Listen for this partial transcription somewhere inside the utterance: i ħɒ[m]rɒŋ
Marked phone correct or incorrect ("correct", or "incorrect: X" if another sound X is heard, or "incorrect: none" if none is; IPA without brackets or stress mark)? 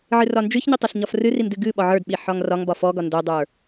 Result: incorrect: ŋ